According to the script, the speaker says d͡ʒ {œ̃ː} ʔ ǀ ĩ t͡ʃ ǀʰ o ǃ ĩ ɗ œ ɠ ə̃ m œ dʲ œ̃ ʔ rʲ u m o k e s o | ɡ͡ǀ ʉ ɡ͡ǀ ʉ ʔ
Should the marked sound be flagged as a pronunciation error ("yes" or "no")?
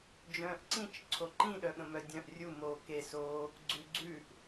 no